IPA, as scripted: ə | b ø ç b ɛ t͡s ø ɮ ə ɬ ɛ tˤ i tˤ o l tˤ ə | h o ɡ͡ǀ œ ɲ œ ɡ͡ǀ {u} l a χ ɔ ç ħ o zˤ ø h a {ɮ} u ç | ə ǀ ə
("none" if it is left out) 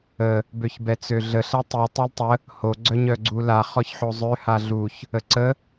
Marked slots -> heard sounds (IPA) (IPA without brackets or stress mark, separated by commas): u, ɮ